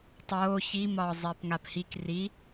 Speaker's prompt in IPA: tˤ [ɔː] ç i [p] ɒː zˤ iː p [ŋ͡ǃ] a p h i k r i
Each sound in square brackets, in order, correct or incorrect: incorrect, incorrect, incorrect

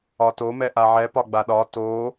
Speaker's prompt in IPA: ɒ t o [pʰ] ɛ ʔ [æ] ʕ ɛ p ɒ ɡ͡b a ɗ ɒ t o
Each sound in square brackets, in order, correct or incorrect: incorrect, incorrect

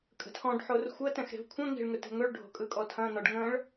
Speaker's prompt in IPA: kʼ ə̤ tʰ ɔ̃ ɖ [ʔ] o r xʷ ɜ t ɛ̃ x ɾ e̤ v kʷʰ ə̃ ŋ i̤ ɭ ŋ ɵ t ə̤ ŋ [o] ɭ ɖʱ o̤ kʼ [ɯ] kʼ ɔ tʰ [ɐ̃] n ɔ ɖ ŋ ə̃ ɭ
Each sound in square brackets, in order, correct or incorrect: incorrect, incorrect, correct, correct

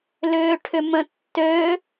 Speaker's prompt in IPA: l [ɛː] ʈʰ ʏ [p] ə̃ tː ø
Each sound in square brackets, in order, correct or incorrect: incorrect, incorrect

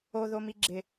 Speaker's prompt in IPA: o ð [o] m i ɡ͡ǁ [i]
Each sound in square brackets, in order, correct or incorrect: correct, incorrect

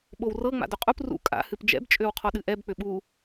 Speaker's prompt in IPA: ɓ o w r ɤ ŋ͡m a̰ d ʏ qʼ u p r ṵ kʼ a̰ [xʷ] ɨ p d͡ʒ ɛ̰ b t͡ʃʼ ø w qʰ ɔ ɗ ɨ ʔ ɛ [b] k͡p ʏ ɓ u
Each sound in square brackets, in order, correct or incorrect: incorrect, correct

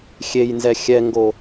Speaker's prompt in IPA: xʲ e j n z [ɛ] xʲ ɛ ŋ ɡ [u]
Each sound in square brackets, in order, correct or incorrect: correct, incorrect

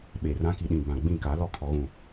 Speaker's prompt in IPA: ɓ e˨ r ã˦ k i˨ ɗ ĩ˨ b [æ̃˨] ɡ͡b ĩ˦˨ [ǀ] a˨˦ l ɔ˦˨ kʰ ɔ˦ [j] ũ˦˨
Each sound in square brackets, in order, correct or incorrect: incorrect, incorrect, incorrect

